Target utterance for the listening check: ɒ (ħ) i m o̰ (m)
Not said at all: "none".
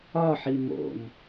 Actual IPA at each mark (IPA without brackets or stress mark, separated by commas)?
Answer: ħ, m